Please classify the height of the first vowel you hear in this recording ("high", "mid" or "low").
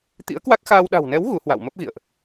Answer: high